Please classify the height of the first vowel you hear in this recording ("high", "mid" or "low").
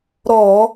mid